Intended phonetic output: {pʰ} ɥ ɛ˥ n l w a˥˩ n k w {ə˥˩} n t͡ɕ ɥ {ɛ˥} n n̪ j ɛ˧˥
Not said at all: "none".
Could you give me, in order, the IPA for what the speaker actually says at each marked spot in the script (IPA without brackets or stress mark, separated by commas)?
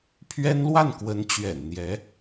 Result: pʰ, ə˧˥, ɛ̰˨˩